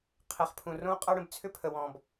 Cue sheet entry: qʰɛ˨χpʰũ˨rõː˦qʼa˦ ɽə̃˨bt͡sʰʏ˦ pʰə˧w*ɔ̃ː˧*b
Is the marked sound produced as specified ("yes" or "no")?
yes